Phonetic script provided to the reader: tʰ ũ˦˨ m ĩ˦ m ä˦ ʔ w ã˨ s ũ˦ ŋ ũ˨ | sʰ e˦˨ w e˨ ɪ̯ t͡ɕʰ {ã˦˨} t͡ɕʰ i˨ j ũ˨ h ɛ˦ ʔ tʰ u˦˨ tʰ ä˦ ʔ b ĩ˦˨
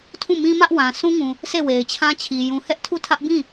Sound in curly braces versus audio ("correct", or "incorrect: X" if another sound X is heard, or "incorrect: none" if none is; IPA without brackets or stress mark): incorrect: ã˦